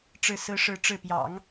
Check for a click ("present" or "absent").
absent